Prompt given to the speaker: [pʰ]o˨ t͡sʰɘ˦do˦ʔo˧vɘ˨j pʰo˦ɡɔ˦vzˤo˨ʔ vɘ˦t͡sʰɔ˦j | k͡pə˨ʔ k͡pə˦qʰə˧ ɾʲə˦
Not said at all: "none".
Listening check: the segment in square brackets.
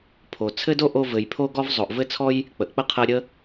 pʰ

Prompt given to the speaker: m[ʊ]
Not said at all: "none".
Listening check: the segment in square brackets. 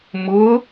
ʊ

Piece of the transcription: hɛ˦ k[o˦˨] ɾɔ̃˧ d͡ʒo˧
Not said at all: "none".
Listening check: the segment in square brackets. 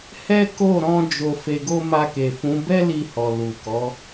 o˦˨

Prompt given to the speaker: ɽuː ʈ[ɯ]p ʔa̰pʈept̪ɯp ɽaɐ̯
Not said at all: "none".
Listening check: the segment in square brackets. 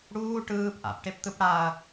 ɯː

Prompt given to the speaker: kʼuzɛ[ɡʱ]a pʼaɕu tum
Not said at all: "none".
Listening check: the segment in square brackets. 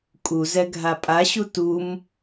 ɡʱ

